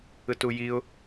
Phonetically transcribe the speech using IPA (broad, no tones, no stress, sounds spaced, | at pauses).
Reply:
ɯ t u j i ʊ̯